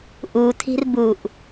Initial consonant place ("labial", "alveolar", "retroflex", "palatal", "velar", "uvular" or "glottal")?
glottal